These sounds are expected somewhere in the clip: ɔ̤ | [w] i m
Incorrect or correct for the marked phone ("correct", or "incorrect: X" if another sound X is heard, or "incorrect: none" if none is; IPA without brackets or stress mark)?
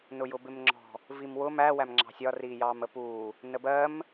incorrect: v